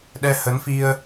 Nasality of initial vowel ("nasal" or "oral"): oral